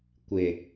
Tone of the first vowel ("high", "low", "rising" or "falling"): low